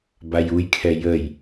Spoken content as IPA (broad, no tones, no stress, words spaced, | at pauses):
bajujkʰɛ jəj